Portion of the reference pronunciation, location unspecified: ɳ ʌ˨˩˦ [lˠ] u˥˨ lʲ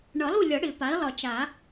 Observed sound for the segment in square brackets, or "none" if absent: lˠ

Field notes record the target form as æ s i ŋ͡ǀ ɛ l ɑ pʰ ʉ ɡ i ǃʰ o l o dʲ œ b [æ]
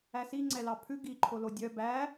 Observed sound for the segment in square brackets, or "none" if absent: æ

